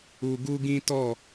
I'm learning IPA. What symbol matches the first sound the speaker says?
u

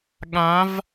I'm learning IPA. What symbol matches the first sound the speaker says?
ɠ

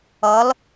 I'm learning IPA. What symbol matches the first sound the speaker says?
ʌ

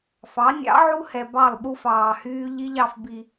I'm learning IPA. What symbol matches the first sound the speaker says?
f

